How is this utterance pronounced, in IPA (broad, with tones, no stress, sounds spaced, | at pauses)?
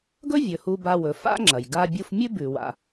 ɡ ɵ˥ vʲ ɵ˩ h u˧ b a˧ w ɵ˩ f a̰˥ ŋ͡ǁ ɐ˩ j ɡ a˧ bʲ u˧ f mʲ ʉ˥ b ʉ˩ w a̰˩